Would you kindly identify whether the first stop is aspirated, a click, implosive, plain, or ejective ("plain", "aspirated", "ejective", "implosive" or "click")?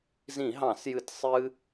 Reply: plain